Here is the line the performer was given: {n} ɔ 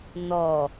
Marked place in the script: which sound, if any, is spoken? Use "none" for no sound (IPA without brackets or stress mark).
n